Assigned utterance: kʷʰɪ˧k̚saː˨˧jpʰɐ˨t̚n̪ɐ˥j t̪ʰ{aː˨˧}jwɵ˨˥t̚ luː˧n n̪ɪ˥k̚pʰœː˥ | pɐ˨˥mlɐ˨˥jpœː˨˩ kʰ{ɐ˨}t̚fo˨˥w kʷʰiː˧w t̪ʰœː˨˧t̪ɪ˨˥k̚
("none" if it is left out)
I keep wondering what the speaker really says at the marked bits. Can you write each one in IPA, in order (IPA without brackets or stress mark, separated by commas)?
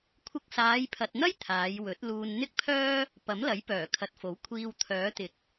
aː˨˧, ɐ˨